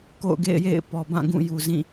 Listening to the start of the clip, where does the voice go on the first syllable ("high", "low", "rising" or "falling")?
falling